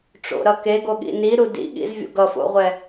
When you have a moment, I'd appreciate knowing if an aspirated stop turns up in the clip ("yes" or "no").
no